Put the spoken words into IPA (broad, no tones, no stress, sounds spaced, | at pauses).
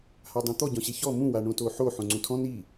h a dˤ õ t̪ ɔ ɟ ɔ̃ ɕ e ç ɔ m ũ w a ɳ õ t o ħ o ħ õ ŋ͡ǀ ũ tʰ ɔ̃ n i